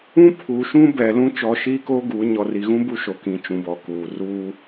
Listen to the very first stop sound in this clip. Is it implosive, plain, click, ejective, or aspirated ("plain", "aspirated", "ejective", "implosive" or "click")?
aspirated